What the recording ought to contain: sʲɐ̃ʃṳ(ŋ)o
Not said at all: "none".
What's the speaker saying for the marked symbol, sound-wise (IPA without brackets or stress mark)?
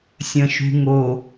ŋ